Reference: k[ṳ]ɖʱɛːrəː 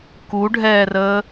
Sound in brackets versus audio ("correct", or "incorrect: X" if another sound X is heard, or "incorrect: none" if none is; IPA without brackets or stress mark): incorrect: u